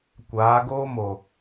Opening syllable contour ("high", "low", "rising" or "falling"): rising